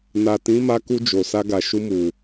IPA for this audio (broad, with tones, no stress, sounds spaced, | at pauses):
n a˨ t ĩ˨˦ m a˧ k u˧ d͡ʒ o˨ s a˧ ɡ a˨ ʃ u˧ m u˨